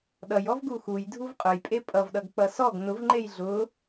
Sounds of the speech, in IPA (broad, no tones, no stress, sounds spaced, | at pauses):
ɗ ʌ j ɔ v ɡ u x u j dʱ u v qʼ ʊ j pʼ e pʼ ʌ v ɗ ʌ ɡ k͡p ʌ s ɔ ɡ n ʊ v ŋ͡ǃ e j ɮ ʊ